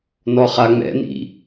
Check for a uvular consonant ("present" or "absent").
present